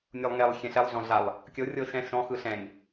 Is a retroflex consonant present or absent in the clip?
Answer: absent